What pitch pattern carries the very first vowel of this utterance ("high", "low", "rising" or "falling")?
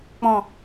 low